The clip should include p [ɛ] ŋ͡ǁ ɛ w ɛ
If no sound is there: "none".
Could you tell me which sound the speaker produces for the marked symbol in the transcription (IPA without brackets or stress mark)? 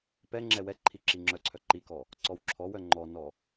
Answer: ɛ